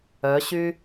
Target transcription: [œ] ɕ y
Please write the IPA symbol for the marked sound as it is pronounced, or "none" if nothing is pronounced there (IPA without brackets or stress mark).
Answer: œ